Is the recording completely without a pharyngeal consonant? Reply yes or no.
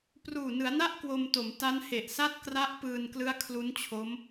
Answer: yes